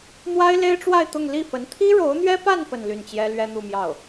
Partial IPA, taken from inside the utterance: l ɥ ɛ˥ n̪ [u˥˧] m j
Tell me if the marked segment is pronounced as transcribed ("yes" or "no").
yes